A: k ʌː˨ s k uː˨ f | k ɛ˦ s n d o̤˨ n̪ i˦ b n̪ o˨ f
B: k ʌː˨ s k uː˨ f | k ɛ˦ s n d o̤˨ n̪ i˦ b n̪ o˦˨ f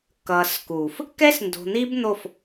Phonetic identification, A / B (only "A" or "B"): B